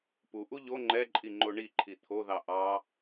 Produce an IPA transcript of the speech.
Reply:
puʔu ʎo ŋ͡ǃɛǃʼi ŋ͡ǃoɳiǃʰi t̪ʰoðɑ ʔɑ

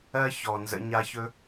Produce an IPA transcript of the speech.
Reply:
ɜ˦çɔ˨nzə̰˧ ɲa˧çɵ˦

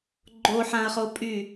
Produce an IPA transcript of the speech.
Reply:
ɡ͡ǃoħãɐ̯χopʼy

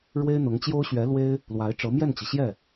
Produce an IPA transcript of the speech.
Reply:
ɻwe˥ɪ̯n̪ʊ˧˥ŋt͡ɕjo˥ʊ̯ ɕɥɛ˧˥ lwe˥ɪ̯ | lwa˧˥ɪ̯ʈ͡ʂɤ˧˥mjɛ˥˩nt͡ɕi˩ ɕjɛ˥˩

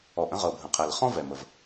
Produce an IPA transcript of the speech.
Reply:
ɔ˩ʔ ə̃˥ʁɤ˩bʱə̃˩qʰɛ˩l χɔ̃˥vɛ˩mə˩v

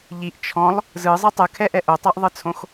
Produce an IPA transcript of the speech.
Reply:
ʎiʔ t͡ʃʰɔ̃lˠ | zɯzˤɯ tˤɯkʰɛʔɛ ʔotˤɛʔðˤɯt͡sʰõx

